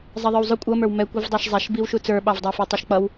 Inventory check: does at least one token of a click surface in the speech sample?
no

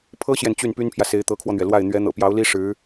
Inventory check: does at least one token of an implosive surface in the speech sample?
no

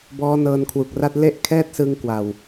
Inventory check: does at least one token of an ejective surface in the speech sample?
no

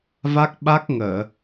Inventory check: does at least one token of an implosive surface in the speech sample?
yes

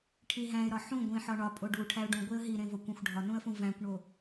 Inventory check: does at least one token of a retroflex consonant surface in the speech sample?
yes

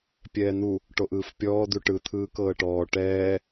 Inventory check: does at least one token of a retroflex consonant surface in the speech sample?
yes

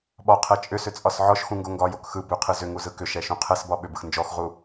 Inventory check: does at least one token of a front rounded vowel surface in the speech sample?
yes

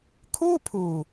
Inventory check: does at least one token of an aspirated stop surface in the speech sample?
yes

